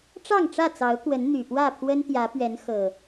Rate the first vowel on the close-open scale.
open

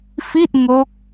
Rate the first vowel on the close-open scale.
close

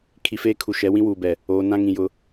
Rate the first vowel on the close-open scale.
close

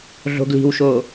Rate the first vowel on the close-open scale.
mid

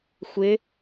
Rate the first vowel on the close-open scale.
close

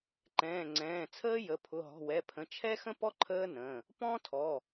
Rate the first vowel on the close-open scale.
mid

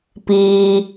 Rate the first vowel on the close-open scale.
close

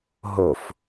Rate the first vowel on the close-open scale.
mid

